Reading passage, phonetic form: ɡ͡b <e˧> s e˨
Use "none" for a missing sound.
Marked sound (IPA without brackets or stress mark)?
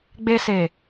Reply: e˧